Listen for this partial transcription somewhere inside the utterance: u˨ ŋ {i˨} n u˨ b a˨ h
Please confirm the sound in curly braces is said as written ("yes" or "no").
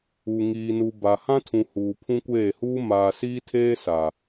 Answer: no